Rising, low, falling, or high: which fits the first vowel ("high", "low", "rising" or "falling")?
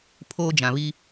high